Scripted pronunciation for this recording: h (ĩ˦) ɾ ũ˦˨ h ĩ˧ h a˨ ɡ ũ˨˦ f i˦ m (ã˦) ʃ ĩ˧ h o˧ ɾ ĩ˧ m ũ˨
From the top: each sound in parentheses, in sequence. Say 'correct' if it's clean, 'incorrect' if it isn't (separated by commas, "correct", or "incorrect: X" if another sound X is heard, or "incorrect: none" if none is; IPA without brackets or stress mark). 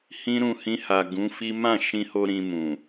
correct, incorrect: ã˦˨